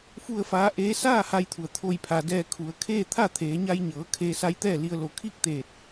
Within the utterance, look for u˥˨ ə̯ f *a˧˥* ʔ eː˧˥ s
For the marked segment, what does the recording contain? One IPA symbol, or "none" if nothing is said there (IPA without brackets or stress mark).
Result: aː˧˥